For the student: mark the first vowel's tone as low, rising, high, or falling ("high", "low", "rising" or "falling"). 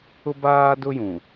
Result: high